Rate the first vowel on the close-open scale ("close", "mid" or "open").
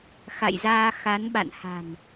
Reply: open